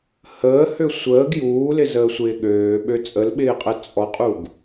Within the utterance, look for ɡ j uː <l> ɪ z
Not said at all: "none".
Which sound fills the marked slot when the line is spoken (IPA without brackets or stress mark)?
l